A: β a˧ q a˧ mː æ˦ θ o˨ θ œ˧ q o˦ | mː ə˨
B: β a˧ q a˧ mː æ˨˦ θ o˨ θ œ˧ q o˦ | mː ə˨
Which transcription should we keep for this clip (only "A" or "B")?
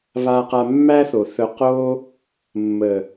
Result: A